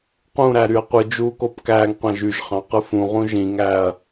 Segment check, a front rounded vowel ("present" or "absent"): present